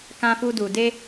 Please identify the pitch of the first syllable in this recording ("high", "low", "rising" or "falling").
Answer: high